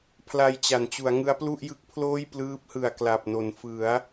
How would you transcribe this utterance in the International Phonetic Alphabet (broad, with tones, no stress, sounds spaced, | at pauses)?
pʰ l a˧ j t͡ɕ a˩˦ n t͡ɕ u˩˦ a̯ ŋ ɯ˦˥ a̯ p l u˥˩ ʔ j ɯ˦˥ k̚ pʰ l oː˥˩ j p l ɯː˦˥ p̚ h ɯ˨˩ a̯ k l a˨˩ p̚ n o˩˦ n f ɯ˩˦ a̯